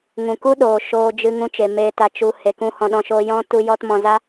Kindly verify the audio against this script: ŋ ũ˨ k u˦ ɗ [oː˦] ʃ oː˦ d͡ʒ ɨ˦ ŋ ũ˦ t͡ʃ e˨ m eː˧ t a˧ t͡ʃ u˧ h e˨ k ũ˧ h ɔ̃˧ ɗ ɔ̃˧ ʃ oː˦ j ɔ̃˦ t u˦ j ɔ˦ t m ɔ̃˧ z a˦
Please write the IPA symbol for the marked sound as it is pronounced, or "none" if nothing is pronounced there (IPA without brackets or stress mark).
oː˨